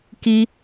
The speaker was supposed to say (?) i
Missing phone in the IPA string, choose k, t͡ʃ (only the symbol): k